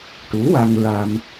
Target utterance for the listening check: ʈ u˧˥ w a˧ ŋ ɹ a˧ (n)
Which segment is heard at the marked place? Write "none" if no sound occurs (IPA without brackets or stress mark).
m